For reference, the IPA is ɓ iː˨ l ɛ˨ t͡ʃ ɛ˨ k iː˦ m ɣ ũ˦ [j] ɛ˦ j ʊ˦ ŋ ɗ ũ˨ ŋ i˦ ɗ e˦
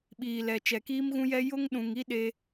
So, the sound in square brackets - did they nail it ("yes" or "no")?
yes